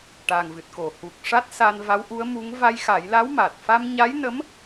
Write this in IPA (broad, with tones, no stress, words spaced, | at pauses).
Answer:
ʈa˨˩ŋvɨ˨˩t̚ko˨˩˨ hu˨˩k̚ʂa˦˥t̚ sa˧nva˧˥wʔu˧˥ə̯mu˧˥ŋ va˧jxa˨˩˦jla˧˥wma˨˩t̚ fa˧mɲa˧˥jnə˧˥m